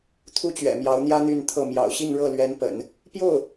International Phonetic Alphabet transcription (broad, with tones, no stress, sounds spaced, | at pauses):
t̪ʰ u˥ t͡ɕ ɥ ɛ̰˨˩ m j ɑ˧˥ ʊ̯ n̪ j ä˥ n̪ y˥˧ n t̪ʰ ɤ˥˩ m j ɑ̰˨˩ ʊ̯ ɕ i˥˧ ŋ ɻ ɤ˥˩ l ɥ ɛ˧˥ n p ə̰˨˩˦ n | p j o˥˩ ʊ̯